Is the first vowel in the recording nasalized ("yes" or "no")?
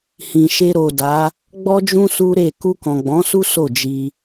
yes